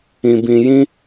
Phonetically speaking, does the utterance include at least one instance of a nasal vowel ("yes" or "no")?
yes